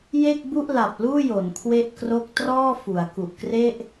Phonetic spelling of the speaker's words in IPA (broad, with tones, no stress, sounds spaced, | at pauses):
j e˥˩ k̚ b u˥˩ ʔ l a˨˩ p̚ l uː˥˩ j o˩˦ n kʰ w e˥˩ ʔ k r o˥˩ k̚ t r ɔː˥˩ f u˩˦ a̯ k u˨˩ ʔ k r e˥˩ ʔ